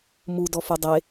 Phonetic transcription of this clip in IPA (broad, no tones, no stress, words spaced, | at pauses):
mu dɔfudˤe